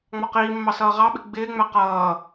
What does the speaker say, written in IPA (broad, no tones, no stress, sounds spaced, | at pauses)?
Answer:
ŋ͡m ɒ q iː mː ɑ s ʌː ʁ ɑ ɓ ɪ ɡ͡b ɪː ŋ͡m æ q ʌː